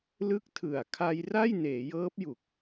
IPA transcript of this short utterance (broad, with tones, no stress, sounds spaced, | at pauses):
l ɯ˥˩ k̚ tʰ ɯ˨˩ a̯ kʰ a˧ j r a˥˩ j n eː˩˦ j ɤː˦˥ p̚ j u˨˩ k̚